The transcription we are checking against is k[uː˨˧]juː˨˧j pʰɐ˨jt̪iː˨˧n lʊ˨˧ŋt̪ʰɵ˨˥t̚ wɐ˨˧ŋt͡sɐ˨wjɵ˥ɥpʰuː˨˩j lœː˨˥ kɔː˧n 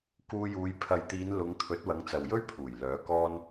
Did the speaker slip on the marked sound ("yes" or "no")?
yes